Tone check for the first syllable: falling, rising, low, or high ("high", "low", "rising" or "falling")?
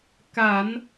low